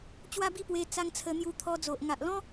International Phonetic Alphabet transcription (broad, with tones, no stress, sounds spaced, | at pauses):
t͡ɕ w a˦ b i˥˧ p w e˧ t͡s a˧ ŋ t͡sʰ ə˧ n̪ j u˧ t̪ʰ ɔ˧ d͡z o˨ ʔ ŋ a˨ ʔ l ɔ̃˦